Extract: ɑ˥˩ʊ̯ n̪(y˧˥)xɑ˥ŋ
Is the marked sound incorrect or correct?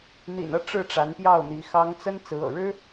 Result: incorrect